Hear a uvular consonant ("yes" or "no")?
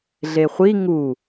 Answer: yes